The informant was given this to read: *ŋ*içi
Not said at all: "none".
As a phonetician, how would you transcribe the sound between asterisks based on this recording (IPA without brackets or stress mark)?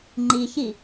ŋ͡ǃ